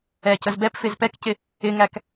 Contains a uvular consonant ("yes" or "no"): no